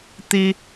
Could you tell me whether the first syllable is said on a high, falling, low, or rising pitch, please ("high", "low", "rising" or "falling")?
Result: high